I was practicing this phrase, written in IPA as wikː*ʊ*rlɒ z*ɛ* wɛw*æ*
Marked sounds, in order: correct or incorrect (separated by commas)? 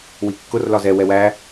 correct, correct, correct